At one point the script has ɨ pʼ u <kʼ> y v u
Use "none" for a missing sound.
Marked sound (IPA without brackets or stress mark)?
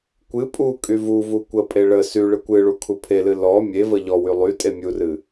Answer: kʼ